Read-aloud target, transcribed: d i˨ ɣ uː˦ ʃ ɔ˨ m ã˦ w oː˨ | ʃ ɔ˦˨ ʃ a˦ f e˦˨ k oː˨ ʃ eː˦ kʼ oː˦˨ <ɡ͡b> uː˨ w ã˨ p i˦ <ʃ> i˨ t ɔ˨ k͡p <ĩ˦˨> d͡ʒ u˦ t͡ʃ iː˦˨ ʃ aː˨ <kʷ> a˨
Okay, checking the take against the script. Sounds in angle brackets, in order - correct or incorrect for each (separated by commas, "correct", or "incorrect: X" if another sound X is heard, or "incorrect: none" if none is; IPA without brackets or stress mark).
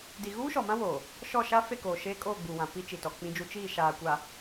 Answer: correct, incorrect: t͡ʃ, incorrect: ĩ˦, correct